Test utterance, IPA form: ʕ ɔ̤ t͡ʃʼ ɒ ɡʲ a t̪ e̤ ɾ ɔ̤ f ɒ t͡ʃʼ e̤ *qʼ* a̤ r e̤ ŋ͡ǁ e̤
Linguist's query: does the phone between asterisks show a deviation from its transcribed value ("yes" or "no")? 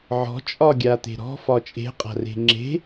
no